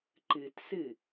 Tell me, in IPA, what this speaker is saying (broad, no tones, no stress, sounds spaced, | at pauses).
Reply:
ǃ ɨ t s ɨ